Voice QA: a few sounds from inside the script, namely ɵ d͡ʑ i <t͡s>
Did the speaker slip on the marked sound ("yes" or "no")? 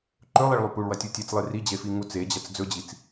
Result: no